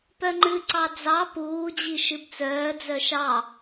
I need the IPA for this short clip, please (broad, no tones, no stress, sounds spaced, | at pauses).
p œ ŋ͡ǃ ɨ ǀ ɑ d͡z ɑ p uː d͡ʑ i ʃ ɨ b t͡s œː d͡z œ ʃ ɑ